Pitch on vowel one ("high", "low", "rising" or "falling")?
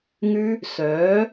high